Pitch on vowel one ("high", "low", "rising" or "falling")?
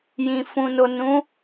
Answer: low